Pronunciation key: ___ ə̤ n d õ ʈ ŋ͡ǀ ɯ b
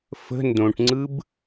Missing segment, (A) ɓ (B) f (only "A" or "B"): B